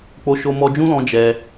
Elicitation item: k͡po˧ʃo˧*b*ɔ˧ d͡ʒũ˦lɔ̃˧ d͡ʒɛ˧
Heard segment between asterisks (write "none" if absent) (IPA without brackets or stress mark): m